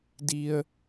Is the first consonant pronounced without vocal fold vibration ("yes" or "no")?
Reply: no